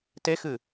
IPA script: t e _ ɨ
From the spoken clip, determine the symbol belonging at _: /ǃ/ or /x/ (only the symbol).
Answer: x